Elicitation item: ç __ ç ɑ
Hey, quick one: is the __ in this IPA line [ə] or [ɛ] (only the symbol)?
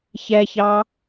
ɛ